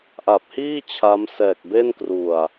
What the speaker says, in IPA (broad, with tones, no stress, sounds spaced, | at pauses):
ʔ a˨˩ p̚ h iː˥˩ t͡ɕʰ a˦˥ m s ɛː˨˩ k̚ b e˥˩ n k r u˨˩ a̯